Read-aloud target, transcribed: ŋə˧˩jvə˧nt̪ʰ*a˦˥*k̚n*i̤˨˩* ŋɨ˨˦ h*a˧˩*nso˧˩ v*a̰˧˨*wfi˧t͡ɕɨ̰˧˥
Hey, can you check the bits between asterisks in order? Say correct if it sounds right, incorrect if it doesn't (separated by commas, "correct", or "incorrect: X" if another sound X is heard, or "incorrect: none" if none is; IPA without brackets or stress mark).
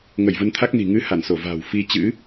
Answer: correct, correct, correct, incorrect: a̤˨˩